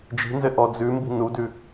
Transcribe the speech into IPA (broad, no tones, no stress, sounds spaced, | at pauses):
d͡ʒ i̤ n z ɘ ʔ ɔ d͡z ʉ m b i̤ n u d ʉ